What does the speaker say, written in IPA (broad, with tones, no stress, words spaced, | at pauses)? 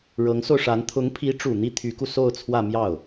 ɻɤ˧˥ŋso˧ʊ̯ʂa˧˥n t̪ʰʊ˧˥ŋpʰi˧˥ʈ͡ʂu˨˩ n̪i˥ t̪ʰy˧˥ku˧ so˥˧ʊ̯t͡sʰwä˥˧ mjɑ˥˩ʊ̯